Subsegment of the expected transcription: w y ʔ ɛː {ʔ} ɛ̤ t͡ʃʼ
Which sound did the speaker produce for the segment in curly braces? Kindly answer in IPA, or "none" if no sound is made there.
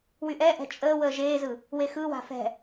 ʔ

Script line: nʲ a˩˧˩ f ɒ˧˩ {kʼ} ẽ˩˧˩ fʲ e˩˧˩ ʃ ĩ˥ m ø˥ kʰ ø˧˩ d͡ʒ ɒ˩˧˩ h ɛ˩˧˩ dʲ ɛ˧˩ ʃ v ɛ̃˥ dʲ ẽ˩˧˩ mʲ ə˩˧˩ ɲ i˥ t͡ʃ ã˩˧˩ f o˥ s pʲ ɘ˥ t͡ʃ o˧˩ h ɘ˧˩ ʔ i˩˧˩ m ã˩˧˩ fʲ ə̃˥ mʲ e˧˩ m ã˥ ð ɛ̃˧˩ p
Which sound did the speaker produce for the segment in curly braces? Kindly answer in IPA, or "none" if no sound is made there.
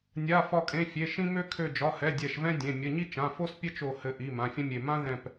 kʼ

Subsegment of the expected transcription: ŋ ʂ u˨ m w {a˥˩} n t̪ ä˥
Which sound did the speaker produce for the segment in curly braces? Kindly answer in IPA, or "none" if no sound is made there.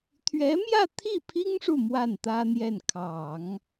a˥˩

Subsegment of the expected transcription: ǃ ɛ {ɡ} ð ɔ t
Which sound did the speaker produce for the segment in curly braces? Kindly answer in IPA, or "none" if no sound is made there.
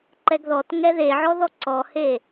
ɡ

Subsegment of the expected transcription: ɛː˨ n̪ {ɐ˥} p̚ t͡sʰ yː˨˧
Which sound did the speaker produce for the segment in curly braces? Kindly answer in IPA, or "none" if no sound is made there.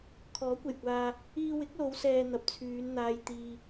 ɐ˨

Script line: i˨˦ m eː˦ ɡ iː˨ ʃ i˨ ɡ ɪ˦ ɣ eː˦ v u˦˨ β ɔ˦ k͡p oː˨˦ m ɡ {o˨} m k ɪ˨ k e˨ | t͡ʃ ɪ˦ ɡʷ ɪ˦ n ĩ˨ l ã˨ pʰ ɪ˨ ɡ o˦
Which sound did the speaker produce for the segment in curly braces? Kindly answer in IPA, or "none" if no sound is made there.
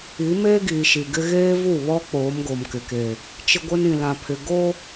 o˨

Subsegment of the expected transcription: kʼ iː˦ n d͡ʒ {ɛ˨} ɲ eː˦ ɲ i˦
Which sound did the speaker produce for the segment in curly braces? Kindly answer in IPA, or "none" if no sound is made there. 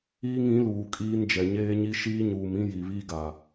ɛ˨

